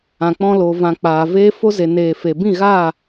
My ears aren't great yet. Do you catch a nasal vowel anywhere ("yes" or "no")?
yes